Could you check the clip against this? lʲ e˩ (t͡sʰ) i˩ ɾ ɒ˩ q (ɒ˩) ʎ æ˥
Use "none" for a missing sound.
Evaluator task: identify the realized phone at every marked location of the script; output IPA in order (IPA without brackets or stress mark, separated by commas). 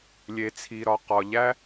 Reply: t͡sʰ, ɒ˩